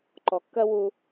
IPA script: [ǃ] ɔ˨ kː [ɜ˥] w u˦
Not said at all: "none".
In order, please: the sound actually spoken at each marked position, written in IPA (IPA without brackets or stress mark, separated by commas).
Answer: ǃ, ɜ˥